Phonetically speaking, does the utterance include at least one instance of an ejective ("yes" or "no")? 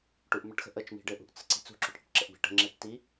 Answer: no